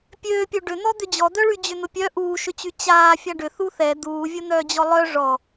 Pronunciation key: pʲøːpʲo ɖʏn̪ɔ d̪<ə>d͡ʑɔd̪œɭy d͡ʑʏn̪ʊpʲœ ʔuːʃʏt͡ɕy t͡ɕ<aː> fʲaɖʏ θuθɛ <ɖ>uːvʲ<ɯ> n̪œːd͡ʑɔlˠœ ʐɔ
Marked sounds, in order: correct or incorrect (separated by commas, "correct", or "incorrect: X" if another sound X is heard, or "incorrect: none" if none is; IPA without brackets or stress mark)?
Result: incorrect: ʏ, correct, incorrect: d̪, incorrect: ʊ